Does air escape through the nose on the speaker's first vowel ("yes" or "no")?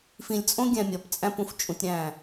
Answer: yes